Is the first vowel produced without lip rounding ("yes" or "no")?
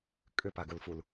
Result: no